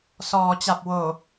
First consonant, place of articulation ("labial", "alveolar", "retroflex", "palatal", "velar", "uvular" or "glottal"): alveolar